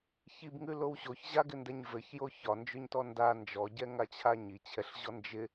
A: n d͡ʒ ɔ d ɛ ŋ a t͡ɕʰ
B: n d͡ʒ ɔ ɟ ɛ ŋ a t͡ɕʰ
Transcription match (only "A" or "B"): B